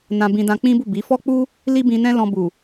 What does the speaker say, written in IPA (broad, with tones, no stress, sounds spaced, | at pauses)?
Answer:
n ã˧ b ĩ˧ d ã˧ k͡p ĩ˦ b u˦˨ b i˨˦ f ɔ˦ k͡p u˦ | l i˦ b ĩ˧ n ɛ̃˦ l ɔ̃˧ b u˨